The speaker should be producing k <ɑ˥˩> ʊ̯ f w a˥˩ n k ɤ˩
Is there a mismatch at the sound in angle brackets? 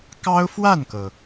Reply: yes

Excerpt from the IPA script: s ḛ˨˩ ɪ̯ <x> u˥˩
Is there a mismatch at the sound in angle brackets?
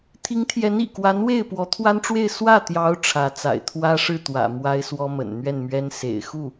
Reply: no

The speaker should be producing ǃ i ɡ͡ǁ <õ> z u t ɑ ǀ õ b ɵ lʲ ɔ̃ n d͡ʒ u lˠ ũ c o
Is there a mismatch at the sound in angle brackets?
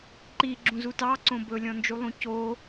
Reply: yes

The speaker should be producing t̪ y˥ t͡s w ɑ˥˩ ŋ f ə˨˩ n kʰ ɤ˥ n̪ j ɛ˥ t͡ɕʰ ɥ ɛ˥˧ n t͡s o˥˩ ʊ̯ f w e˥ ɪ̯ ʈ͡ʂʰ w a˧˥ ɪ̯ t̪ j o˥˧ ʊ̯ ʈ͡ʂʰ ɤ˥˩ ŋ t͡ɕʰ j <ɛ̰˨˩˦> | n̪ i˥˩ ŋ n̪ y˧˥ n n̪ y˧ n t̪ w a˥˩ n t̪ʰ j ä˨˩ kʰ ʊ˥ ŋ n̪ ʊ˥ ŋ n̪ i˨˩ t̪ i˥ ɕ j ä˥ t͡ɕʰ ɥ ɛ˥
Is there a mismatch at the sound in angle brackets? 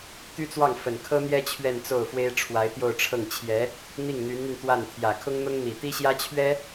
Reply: yes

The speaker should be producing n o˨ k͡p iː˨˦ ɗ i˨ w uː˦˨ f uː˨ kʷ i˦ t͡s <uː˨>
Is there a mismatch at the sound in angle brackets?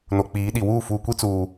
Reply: no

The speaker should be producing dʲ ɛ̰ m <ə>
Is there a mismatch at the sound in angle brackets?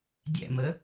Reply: no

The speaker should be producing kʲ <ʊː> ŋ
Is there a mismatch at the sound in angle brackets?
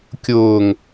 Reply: no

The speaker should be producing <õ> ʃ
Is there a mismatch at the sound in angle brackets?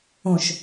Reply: no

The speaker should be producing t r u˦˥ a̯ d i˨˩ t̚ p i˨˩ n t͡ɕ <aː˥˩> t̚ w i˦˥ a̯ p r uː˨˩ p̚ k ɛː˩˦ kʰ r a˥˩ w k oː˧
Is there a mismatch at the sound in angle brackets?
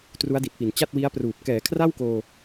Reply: yes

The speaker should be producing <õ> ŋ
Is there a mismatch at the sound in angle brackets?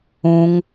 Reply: yes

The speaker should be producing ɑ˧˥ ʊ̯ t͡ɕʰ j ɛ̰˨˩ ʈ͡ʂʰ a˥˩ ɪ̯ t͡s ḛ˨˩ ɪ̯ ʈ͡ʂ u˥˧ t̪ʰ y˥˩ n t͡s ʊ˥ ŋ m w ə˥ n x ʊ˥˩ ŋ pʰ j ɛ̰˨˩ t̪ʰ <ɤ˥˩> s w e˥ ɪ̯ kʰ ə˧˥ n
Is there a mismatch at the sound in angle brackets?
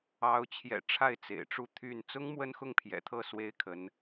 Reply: no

